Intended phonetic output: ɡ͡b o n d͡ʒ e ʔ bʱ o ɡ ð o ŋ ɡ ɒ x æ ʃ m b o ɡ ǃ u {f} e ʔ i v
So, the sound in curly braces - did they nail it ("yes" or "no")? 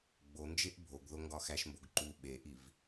no